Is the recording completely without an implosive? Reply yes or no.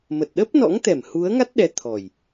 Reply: no